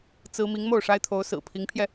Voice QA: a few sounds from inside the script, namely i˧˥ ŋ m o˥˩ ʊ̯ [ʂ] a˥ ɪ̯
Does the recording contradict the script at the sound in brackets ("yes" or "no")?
no